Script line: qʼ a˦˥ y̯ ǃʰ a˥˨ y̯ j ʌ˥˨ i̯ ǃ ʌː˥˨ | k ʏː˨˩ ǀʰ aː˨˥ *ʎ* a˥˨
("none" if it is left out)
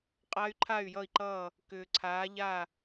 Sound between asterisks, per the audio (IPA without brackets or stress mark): ʎ